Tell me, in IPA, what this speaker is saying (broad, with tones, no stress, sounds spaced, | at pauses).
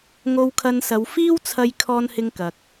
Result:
ŋ o˧ w kʰ ɐ˧ n s ɐ˨˧ w f iː˥ w t͡sʰ ɐ˧ j kʰ ɔː˥ n h ɪ˥ ŋ k ɐ˧ k̚